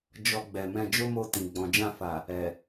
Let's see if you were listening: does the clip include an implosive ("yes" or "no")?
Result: no